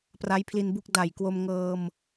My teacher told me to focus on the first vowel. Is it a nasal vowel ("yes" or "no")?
no